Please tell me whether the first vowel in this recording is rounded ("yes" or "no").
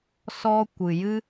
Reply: yes